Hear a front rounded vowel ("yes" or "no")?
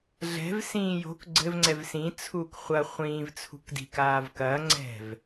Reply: no